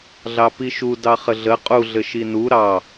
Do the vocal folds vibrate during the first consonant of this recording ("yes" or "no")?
yes